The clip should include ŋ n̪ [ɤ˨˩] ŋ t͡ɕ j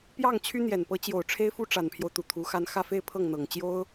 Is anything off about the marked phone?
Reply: no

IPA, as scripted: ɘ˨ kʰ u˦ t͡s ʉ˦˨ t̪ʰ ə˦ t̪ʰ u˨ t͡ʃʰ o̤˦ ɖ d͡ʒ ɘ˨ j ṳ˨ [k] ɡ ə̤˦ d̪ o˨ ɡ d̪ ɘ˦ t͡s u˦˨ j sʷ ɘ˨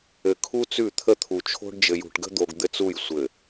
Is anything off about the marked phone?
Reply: yes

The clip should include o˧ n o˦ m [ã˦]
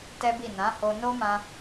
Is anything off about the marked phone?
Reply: yes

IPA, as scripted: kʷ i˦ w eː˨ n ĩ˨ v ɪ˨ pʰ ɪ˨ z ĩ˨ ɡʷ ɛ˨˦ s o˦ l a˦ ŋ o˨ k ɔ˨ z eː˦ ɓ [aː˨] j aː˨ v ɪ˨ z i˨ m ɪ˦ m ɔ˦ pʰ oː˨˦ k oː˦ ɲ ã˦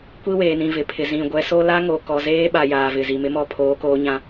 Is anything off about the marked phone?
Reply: yes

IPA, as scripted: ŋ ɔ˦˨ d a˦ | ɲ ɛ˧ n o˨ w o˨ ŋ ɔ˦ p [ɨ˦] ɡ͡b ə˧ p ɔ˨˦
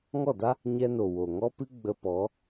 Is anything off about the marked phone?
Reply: no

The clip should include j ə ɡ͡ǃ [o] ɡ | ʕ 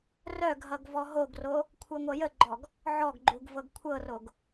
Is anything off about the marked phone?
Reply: yes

